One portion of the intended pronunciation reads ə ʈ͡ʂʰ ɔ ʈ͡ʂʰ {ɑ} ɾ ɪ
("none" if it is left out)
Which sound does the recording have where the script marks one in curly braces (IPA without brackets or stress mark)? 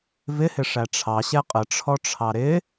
ɑ